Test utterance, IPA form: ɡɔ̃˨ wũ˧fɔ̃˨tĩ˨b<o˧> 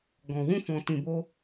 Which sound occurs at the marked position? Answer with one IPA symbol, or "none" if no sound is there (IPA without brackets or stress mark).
o˧